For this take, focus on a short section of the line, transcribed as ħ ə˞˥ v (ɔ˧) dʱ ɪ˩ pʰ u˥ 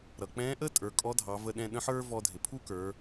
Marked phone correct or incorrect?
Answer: correct